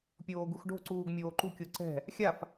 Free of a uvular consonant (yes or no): yes